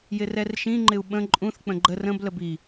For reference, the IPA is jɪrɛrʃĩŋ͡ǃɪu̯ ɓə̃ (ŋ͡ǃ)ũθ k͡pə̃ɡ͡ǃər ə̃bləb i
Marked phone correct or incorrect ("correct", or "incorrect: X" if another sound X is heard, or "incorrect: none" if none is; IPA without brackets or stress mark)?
incorrect: ǃʼ